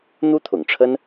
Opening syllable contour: high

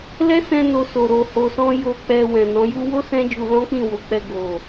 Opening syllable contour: high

